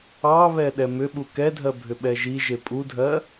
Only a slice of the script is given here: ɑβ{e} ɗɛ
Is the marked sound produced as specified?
no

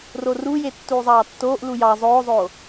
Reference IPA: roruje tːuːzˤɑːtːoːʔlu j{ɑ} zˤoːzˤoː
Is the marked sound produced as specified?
yes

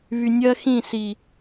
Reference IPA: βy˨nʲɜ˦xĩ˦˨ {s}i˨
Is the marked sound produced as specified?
yes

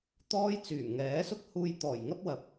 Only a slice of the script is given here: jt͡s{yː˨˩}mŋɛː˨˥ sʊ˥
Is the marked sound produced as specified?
yes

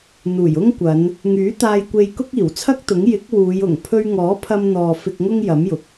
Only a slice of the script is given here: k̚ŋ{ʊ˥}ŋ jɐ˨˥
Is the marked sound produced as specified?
yes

